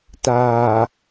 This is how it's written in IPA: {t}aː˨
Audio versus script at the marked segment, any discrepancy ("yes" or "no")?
no